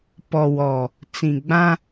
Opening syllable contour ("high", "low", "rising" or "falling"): low